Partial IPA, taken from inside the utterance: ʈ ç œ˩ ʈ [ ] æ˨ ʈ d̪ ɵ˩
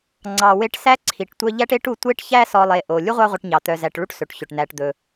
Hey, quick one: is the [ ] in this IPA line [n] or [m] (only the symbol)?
n